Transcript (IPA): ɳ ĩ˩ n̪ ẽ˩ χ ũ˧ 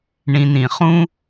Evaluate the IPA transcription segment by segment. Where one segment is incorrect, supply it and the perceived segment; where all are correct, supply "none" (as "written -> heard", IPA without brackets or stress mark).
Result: ẽ˩ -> ĩ˩